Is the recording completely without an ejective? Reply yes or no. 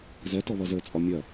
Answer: no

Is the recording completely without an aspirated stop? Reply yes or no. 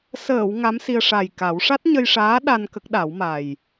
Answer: yes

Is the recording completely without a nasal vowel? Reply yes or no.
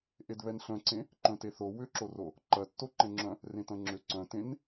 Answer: no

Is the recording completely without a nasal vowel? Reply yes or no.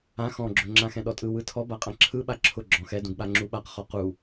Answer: no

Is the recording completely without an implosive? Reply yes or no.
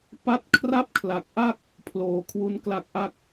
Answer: yes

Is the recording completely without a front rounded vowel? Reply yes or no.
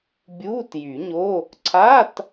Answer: no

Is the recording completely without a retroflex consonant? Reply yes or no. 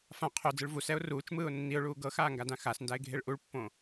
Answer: no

